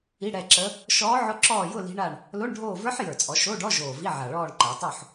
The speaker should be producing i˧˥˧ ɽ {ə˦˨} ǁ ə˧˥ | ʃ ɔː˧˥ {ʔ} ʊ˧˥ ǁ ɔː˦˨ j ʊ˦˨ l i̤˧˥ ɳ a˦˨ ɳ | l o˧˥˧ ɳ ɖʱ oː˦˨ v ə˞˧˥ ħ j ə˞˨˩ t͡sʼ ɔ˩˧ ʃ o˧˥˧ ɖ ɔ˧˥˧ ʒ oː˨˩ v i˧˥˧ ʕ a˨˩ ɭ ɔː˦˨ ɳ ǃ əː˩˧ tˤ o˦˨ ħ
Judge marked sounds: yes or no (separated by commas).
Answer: no, no